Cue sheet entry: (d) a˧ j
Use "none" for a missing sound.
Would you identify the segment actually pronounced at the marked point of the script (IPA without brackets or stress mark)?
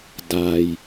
d